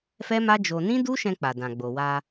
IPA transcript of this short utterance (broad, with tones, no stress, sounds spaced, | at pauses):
f ɛ˦ m a˦ d͡ʒ o˧ n ĩ˦ d u˦ ʃ ɛ̃˧ k͡p a˨ d ã˨ ɡ͡b o˨ w a˧